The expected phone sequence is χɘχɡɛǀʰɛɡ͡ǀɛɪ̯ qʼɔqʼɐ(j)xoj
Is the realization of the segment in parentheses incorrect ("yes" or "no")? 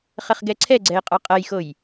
no